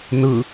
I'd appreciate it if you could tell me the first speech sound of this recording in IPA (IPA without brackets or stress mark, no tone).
n